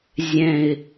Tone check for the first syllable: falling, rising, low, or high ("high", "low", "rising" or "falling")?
falling